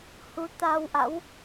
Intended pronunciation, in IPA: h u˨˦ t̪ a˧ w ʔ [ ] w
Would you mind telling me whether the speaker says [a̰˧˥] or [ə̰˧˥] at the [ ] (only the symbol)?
a̰˧˥